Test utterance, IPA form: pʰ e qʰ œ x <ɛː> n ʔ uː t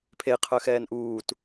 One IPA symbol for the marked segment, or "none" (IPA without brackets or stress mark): ɛː